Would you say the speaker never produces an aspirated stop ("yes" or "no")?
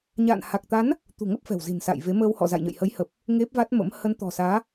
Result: yes